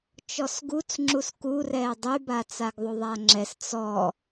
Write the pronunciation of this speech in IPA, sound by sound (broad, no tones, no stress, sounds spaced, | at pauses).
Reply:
t͡ʃ ɔ s ɡ u t͡s ŋ͡ǁ u s k u r ɛː dˤ y b a t͡s a ɡ ðˤ u ðˤ a ŋ͡ǁ ɛ s t͡s ɔ